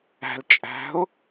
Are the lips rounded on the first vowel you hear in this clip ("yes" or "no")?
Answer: no